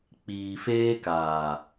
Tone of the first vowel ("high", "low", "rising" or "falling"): low